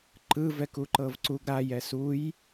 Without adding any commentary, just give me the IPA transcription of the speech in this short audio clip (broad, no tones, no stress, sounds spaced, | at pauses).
ǃ ɯ v ɛ k u ǃ ɤ v ǀ u ɡ ɾ a j ɛ s u j